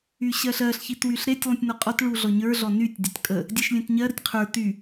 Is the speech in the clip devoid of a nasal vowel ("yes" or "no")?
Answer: no